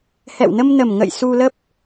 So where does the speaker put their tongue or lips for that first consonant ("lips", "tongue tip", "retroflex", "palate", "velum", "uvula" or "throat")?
throat